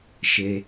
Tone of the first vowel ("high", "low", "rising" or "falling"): low